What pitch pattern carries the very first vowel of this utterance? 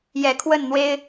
low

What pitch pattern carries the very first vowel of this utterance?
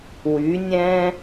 rising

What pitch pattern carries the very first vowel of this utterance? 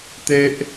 high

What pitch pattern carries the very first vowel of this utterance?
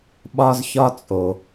high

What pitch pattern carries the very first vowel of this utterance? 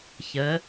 rising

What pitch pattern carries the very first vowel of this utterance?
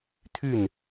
falling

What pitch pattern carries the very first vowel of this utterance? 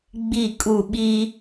falling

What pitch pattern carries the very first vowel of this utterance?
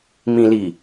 low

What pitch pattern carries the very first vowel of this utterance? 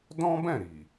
high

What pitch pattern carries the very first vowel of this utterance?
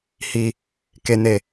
low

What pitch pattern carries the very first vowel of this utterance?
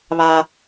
high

